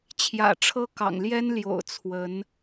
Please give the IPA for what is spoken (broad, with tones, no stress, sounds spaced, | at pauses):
t͡ɕʰ j ä̰˨˩ ʈ͡ʂʰ ɤ˥ k ɑ̰˨˩ ŋ l j ɛ˥ n l j o̰˨˩ ʊ̯ t͡sʰ w ə˧˥ n